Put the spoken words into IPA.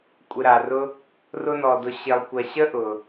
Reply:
kʷʼ ɪ˨ ɾ a˩ r ʊ˦ | r ʊ˥ n ɔ˨ d ʊ˨ ɕ ɪ˨ lˠ kʷ ɐ˨ ɕ ə˥ ʔ ʊ˩

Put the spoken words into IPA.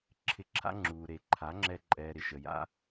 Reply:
ǁʰ ɪ˧ ǁʰ a̰˦ ŋ͡ǁ uː˨ ɾ e˨ ǃʰ a˨˦ ŋ͡ǁ ɛ˧ ǃʼ ɛː˨ ɾ ɪ˨ ʃ ə˨ j a̰˦

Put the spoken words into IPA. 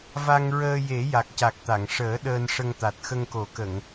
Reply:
v a˧ ŋ ɹ əː˧ j e˨˩˦ j a˨˩ k̚ c a˨˩ k̚ t̪ a˨˩˨ ŋ ʂ əː˨˩˦ ɗ əː˧ n ʂ ə˧ ŋ t̪ a˨˩ t̚ x ə˧ ŋ k o˨˩˦ k ə˨˩˨ ŋ

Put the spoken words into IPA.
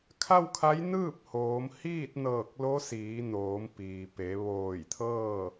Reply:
kʰ a˥˨ w kʰ a˧˥ j n ɯː˥˨ p̚ h oː˩˧ m h iː˥˨ t̚ n ɤː˧˩ k̚ l o˧˥ s iː˩˧ n oː˩˧ m p iː˩ p e˩˧ ʋ oː˧˩ j t̪ʰ ɤː˥˨

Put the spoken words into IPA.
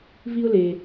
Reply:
v i˥ ʊ̯ l e˧

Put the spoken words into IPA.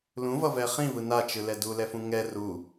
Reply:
l ũ v ʌ v ɛ χ ĩ v ɯ n a t͡ʃ ɯ l ɛ d u l ɛ f ũ ŋ ɛ r u

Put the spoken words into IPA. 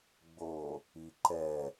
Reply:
ɡ͡b o | i ǃ ɛ

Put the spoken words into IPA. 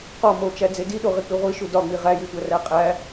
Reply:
q ɒ m o t͡ʃ æ d͡z e d i ɗ o ʁ i k͡p i ʁʷ i ʃ u d ɒ ŋ͡m i ʁ æ j u tʷ æ r æ qʼ æ

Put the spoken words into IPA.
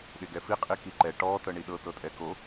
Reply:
ɗ e ɡ ɛ f i qʼ i k i ǃ ɛ ʈ ɔ t ɤ ɳ i ɗ ɤ t ɤ tʼ ɛ k o

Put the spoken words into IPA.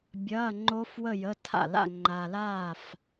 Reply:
bʲ ɐː˧˥˧ ŋ͡ǃ o˦˥ f w ə˥˧ j ə˧˥˧ tʰ a̰˥˩ l a̰˥˧ ŋ͡ǃ a˨ l aː˥˩ f

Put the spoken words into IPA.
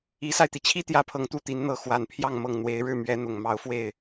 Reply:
i˧˥ s a˧ ɪ̯ t̪ i˩ t͡ɕʰ i˥ t̪ j ä˧˥ pʰ ɤ˨˩ ŋ t̪ u˥˩ t̪ i˧˥ n n̪ ɤ˧˥ x w a˨˩ n pʰ j ɑ˥˧ ŋ m ɤ˥˩ ŋ n̪ w e˧˥ ɪ̯ ɻ ɻ̩˥˩ m ɥ ɛ˧˥ n̪ ʊ˨˩ ŋ m ɑ˧˥ ʊ̯ f w e˥˩ ɪ̯

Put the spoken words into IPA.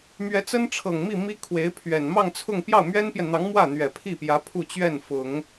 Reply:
m ɥ ɛ˧˥ t͡s ə˥ n ʈ͡ʂʰ ɤ˨˩ ŋ m i˥˩ m i˥ kʰ w e˧˥ ɪ̯ pʰ ɥ ɛ˨˩ n m ɑ˥˧ ŋ t͡sʰ ʊ˥˧ ŋ p j ɑ˥˩ ʊ̯ m ɥ ɛ˥ n p j ɛ˨ n n̪ ɑ˧˥ ŋ m w ä˥˩ n̪ ɥ ɛ˨˩ pʰ i˥˩ p j ä˧˥ pʰ u˥˧ t͡ɕ ɥ ɛ˥˩ n f ʊ˨˩˦ ŋ

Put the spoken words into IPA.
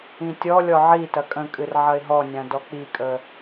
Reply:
ĩ tʲ ɔ lʲ ɔ ʕ i t ɐ kʼ ə̃ kʼ ɨ r ʕ ɐ ɪ̯ ɦ ɔ nʲ ã d ɔ k͡p i kʼ ə

